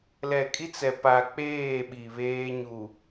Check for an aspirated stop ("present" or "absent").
absent